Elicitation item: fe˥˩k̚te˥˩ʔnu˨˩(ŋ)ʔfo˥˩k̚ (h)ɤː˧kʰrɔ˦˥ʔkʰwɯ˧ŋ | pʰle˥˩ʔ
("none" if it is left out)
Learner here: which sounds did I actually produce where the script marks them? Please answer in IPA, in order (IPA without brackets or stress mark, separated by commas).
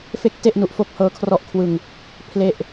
none, h